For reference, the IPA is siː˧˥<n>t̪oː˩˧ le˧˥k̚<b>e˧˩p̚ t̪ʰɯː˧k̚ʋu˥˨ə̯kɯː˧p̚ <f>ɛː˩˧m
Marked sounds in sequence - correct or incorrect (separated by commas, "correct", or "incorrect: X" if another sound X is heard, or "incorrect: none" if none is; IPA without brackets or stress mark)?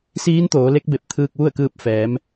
correct, correct, correct